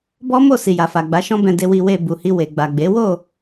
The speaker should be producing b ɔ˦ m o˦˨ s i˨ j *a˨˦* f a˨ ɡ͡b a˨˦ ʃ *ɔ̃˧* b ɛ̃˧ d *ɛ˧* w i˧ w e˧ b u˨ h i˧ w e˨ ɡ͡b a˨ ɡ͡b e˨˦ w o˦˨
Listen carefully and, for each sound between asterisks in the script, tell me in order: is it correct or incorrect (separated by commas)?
incorrect, incorrect, incorrect